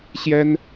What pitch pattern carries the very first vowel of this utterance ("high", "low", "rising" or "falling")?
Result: high